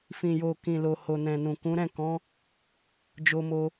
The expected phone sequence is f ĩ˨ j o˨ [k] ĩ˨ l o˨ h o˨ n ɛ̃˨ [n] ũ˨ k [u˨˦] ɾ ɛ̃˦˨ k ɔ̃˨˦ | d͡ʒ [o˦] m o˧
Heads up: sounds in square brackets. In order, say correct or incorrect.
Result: correct, correct, incorrect, incorrect

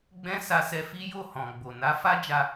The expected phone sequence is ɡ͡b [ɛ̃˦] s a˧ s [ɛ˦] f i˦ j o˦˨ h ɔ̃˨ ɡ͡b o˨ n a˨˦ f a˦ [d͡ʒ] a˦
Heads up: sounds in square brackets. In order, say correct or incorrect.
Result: correct, incorrect, correct

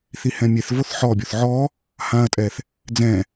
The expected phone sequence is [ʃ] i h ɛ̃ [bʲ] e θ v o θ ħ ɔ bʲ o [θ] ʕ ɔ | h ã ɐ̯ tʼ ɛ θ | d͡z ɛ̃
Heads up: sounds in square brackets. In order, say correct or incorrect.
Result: incorrect, incorrect, correct

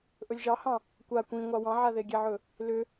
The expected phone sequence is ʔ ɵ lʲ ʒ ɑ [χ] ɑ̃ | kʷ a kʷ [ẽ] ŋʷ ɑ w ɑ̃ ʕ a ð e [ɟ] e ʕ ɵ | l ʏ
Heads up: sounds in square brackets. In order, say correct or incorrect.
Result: incorrect, incorrect, incorrect

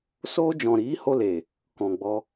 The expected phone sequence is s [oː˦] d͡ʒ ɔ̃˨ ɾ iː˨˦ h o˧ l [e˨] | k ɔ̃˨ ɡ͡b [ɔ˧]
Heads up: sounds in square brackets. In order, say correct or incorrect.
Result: correct, correct, correct

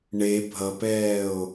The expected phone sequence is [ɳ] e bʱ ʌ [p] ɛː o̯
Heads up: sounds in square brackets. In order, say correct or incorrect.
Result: correct, correct

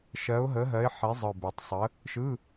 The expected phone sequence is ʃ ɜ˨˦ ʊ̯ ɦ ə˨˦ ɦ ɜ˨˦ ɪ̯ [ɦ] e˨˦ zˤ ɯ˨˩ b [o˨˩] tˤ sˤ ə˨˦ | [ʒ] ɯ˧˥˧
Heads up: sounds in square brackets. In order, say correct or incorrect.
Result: incorrect, correct, incorrect

